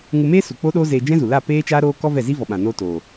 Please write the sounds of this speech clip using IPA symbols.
ŋ u˧ m eː˦ s u˨ k͡p o˦ ɗ oː˦ z eː˧ d͡ʒ ɛ̃˦ z u˨ l a˦˨ p eː˦ t͡ʃ aː˦ ɾ oː˦ k ɔ˦ v ɛ˦˨ z i˦ v ɔ˨ ɓ ã˨ n oː˧ t oː˨

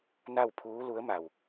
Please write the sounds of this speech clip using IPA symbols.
n a˥˨ w pʰ uː˧˥ l u˧˥ ə̯ m a˧˩ w

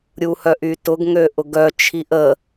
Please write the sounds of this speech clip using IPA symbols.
ɾʲ u h œ ʔ y t ʊ ɡ ŋ ø ʔ ʊ ɡ œ t͡ʃʰ i ʔ ə

